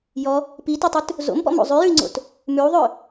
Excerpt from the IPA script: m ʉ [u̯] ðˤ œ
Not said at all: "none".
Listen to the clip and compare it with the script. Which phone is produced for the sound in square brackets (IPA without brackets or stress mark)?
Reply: u̯